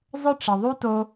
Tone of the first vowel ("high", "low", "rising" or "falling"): high